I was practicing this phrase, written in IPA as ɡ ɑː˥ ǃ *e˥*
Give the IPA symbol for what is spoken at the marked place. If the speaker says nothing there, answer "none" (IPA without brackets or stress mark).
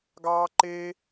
e˥